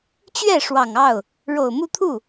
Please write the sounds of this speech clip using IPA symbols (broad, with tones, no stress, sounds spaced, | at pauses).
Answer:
t͡ɕ ɥ ɛ˥˩ ʂ w ɑ˨˩ ŋ ɑ˥˩ ʊ̯ | ɻ o˨˩ ʊ̯ m u˥˧ t̪ʰ u˥˩